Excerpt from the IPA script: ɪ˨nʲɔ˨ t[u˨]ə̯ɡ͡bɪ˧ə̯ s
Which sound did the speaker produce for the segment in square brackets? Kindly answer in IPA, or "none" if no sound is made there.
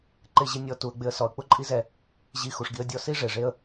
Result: u˨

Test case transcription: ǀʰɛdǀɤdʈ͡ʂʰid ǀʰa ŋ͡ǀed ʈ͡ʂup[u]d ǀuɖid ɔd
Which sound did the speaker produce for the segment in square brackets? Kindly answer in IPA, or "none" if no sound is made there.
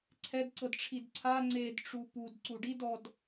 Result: u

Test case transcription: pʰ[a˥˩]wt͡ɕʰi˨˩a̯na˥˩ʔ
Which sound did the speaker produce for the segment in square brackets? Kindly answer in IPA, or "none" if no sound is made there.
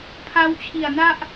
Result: a˦˥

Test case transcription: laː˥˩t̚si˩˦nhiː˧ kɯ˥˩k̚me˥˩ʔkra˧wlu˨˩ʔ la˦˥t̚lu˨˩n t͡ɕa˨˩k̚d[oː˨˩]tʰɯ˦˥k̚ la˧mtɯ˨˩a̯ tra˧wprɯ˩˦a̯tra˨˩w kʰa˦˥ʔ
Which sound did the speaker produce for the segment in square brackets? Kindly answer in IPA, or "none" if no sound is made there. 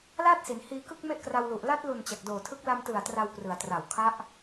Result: oː˨˩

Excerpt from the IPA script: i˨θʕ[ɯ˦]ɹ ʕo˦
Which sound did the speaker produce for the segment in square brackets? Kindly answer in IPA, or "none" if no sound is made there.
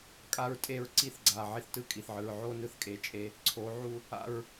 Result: ɯ˨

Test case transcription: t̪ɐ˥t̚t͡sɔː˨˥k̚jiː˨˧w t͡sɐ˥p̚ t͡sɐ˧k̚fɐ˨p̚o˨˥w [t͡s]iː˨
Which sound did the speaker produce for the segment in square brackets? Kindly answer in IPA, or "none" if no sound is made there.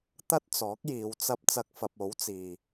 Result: t͡s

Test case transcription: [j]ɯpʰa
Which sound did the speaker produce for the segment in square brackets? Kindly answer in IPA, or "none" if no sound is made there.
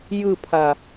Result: j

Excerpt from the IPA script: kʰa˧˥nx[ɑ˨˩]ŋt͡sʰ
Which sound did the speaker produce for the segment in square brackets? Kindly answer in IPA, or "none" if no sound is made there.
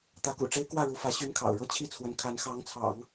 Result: ɑ˧˥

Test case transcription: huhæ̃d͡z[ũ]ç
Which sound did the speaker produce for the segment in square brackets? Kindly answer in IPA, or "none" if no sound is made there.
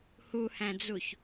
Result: u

